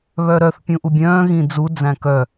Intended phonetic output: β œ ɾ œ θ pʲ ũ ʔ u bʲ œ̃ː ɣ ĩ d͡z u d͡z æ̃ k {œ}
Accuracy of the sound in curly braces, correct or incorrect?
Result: correct